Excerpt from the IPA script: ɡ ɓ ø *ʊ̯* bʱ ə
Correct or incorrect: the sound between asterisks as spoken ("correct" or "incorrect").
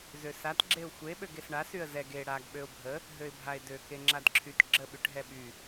correct